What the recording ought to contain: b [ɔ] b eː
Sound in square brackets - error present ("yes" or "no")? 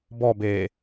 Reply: no